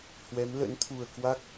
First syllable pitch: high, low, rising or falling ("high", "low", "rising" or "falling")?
rising